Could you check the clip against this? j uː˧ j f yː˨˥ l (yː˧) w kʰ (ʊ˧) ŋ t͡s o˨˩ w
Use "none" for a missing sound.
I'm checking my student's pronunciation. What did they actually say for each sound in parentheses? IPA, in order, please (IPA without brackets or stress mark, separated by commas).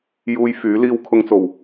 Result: iː˧, ʊ˧